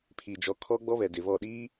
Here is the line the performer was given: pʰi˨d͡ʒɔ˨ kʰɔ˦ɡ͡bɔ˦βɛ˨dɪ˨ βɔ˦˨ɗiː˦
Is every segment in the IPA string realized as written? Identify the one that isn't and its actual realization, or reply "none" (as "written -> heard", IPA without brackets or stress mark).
none